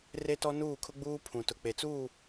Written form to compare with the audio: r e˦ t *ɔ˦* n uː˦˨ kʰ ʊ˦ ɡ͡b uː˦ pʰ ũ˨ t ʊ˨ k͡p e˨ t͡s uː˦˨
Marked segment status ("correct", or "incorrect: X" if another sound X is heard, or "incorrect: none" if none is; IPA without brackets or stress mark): correct